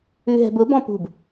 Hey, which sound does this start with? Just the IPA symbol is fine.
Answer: ʉ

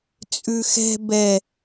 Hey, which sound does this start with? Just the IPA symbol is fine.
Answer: t͡sʼ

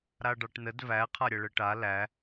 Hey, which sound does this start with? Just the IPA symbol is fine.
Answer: ɾ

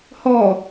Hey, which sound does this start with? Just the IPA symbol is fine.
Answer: h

